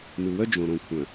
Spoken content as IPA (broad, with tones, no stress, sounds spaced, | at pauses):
n ɯ˨ w œ˦ d͡ʒ õ˨ ɾ õ˨ kʷʰ œ̃˨